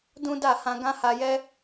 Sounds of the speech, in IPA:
dũ˦da˦˨hã˧ ɡã˦ha˧jɛ˦

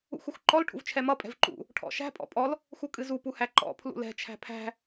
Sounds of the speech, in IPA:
ṵxuxǃɔl ʈʰṵvt͡ʃʰɛmʌ pʼɛ̤vǃṵ | ʈʰɔ̰ʃæ̤ pʼɔ̰pʼɔl | xukʼɨzu puhæǃɔ̰ pʰlṵlɛ̤ t͡ʃʰæ̤pʰæ̤

